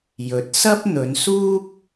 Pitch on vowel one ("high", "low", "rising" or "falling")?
rising